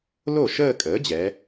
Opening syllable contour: falling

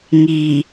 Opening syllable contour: low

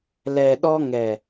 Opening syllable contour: low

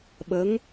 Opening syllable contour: rising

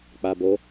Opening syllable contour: low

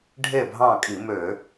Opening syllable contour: falling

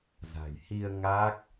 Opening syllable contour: low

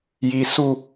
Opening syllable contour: low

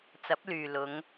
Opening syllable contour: rising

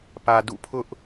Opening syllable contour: low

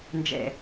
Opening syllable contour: low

